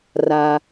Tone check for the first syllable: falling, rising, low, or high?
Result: low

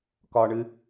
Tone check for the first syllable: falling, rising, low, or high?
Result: high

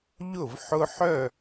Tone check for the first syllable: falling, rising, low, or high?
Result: falling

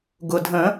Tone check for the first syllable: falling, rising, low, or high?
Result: low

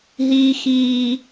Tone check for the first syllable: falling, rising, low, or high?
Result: high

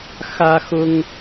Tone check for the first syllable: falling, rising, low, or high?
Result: high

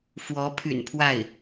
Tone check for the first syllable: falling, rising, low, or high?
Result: rising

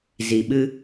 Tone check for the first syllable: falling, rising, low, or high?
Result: low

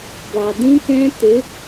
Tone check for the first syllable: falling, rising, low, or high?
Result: low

